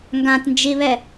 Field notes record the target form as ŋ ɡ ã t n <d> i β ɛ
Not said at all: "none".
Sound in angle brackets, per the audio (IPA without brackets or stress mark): d͡ʒ